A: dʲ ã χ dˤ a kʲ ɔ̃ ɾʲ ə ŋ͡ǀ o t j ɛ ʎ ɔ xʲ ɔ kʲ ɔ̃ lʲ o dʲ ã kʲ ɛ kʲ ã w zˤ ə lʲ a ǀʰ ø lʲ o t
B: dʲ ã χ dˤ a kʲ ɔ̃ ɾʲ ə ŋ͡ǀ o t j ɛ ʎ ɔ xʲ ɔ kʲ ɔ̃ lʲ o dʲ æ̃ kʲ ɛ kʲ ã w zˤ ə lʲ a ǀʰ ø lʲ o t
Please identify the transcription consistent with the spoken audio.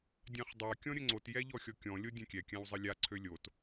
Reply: A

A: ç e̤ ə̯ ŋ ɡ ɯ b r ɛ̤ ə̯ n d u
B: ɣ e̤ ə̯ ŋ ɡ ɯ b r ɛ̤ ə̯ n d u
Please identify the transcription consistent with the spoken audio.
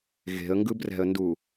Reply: B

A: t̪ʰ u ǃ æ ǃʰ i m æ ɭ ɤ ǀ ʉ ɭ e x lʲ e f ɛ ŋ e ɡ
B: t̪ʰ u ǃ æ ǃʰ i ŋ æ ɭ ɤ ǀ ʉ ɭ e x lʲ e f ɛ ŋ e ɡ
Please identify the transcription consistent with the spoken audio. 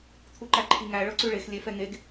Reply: B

